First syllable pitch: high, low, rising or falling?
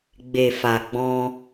low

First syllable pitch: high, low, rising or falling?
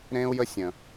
high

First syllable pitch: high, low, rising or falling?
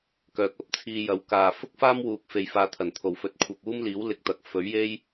rising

